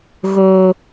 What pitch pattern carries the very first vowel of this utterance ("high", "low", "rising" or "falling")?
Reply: low